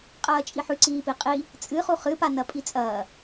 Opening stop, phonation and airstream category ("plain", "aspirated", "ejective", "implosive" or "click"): ejective